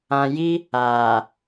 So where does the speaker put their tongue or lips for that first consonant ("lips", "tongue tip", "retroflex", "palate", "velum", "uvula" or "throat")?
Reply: palate